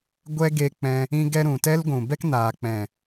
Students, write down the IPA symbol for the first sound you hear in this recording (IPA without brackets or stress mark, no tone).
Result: ɡʷ